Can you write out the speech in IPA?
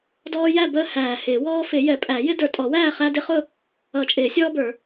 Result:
d ɔː˦ j æ˥˨ b əː˦ h æː˨˩ h ɪː˨˩˦ w ɔː˦ f ɪ˨˩˦ j ɛ˨˩˦ pʼ æ˨˩˦ j ɪ˦ d ə˞˨˩ tʼ ɔ˨˩˦ w æː˥˨ χ æ˦ d ɪ˦ χ ʊ˥˨ | ʌ˨˩˦ t͡ʃʼ ɪː˨˩˦ sʲ ɔː˦ b ə˞˨˩˦

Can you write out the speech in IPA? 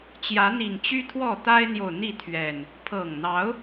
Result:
t͡ɕ j ä˨˦ n̪ i˨˩ ŋ t͡ɕ y˦ t̪ʰ w ɔ˥˨ t̪ a˦ ɪ̯ n̪ j o˨ ʊ̯ n̪ i˥˨ t̪ʰ ɥ ɛ˨˩ n | pʰ ɤ˨˩ ŋ n̪ ɑ˨˦ ʊ̯

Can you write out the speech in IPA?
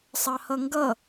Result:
sˤ ɑ h ʌ ŋ ɡ ʌ

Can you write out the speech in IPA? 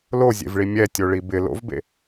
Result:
l o zʲ ḛ v ɭ i mʲ ɛ tʲ o ɭ i b ɪ l o̰ v b ḛ

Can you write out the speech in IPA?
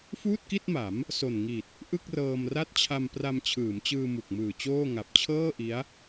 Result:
f uː˥˩ t̚ k i˥˩ t̚ m a˩˦ m | s o˨˩ n ŋ i˨˩ t̚ | ʔ ɯ˥˩ k̚ r ɤː˧ m r a˦˥ t̚ t͡ɕʰ a˧ m p r a˧ m t͡ɕʰ ɯː˩˦ m t͡ɕ ɯː˧ m u˨˩ k̚ m ɯː˨˩ t͡ɕ oː˥˩ ŋ a˨˩ p̚ t͡ɕʰ ɤː˥˩ ʔ i˦˥ a̯

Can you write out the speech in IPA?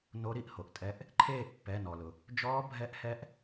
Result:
n o˧˥ ɾ i˦˨ ʔ h o˩ ʔ tʼ ɛ˧˥ ʔ | ǃʰ eː˦˨ ʔ pː ɛ˩˧˩ n ɔ˩ l ʊ˩ | d͡ʒ ɔː˧˥ bʱ ɛ˧˥ ʔ h ɛ˧˥ ʔ

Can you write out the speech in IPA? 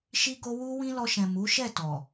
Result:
ʃ i˦ ɡ o˦ w u˦ w ĩ˦ l ɔ˧ ʃ ɛ̃˨ m u˨˦ ʃ ɛ˦˨ t ɔ˨

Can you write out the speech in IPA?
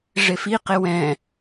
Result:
ʐ e f i q e w ɛ̃

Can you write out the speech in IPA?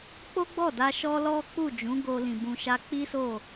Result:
k͡p o˦ ɡ͡b ɔ˦˨ d a˧ ʃ ɔ˦ l ɔ˦ k͡p u˦˨ d͡ʒ ũ˨˦ ɡ o˧ l ĩ˨ b ũ˨ ʃ a˧ k͡p i˦ s o˦˨

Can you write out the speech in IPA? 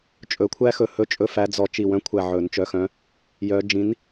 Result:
t͡ʃʼ ɵ˨˩˦ kʷʰ æ˦˥ x ɵ˧˩ h ɵ˦˥ t͡ʃʼ ɵ˦˥ f æ˨˥ d͡z ɔ˧˩ t͡ʃ i˧˩ w œ̃˨˥ kʷʰ æ˧˩ ʕ ɵ˨˩˦ n t͡ʃ œ˨˥ x œ̃˨˥ | j œ˨˩˦ d͡ʒ ĩ˨˥ n

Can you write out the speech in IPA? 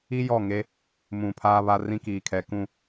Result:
i˦ j ɔ˦˨ ŋ e˦ | m ũ˨ pʰ aː˦ β a˦ r ĩ˦ k iː˨ kʰ ɛ˨ k ũ˨

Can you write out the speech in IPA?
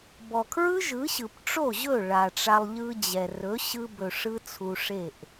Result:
b ɔ˨ kʰ ɹ ɯ˦ ʒ ɯ˨˦ ɕ ɯ˨ p ʈ͡ʂ o˦˨ ʑ ɵ˦˨ ɭ a˨ ʈ͡ʂ a˧ lˠ ʎ ɯ˧ d͡ʑ ɛ˨ r ɵ˨˦ ɕ ɯ˧ b ɵ˨ ʂ ɯ˧ t͡sʰ u˧ ʂ e˦˨ ʔ

